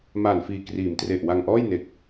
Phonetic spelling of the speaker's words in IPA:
m aː˨˩ n f iː˨˩ k r iː˩˦ m t r e˨˩ ʔ w a˧ ŋ ʔ ɔː˥˩ j n e˨˩ k̚

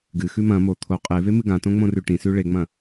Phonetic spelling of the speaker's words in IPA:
ɡ ɨ x ʉ m ɐ̃ m o t̪ʰ o qʼ e v e m ɨ ɡ ã t õ ŋ͡m õ r ʉ ʈ ĩ s ʉ ɭ e ŋ͡m ɐ̃

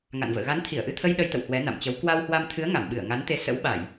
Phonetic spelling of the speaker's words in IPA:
ŋ a̰˧˨ n v ə̰ː˧˨ ɣ a˨˦ n t̪ʰ i˧˩ ə̯ ʔ ɨ˧ t̪ʰ ə˧ j ɗ ə˧ j t̪ ə̰˧˨ w h w ɛ˨˦ n a̰˧˨ m t͡ɕ ə˨˦ w k w a˧ w h w a˧ m t̪ʰ ɨ˨˦ ə̯ ŋ a˧˩ m ɓ ɨ˧˩ ə̯ ŋ a˨˦ n t̪ e˧ s ə̰˧˥ w ɓ a˧˩˨ j

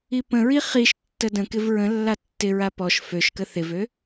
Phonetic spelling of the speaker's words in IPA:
i p ə̃ ɹ i χ i ʃ tː ə d ə̃ k ɪ v ɹ ə̃ lː a tː ɪ ɹ a p ɔ ʃ f ø ʃ k ə θ ɪ v ø

